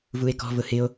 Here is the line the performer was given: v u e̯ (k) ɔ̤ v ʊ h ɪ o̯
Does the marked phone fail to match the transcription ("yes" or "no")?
no